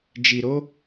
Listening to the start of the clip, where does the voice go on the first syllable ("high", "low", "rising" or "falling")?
low